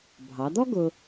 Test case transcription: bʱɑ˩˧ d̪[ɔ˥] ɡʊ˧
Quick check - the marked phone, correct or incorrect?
correct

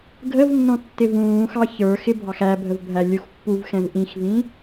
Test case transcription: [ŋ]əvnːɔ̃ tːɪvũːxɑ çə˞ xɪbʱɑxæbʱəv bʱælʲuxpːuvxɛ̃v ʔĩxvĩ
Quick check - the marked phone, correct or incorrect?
incorrect: ɡʱ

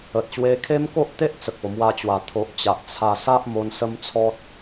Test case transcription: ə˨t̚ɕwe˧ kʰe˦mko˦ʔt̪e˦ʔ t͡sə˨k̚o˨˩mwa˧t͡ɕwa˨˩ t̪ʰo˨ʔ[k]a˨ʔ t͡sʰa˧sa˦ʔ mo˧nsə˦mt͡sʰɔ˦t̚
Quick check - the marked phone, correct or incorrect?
incorrect: t͡ɕ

